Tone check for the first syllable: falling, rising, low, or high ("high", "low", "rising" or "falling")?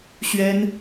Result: high